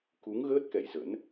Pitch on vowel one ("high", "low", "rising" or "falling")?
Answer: rising